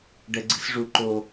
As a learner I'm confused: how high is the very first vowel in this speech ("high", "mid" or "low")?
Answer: mid